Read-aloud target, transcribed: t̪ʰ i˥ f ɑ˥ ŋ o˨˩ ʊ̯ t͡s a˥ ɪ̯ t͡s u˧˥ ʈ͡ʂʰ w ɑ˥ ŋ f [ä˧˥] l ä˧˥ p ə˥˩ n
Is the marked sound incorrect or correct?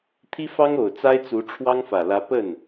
incorrect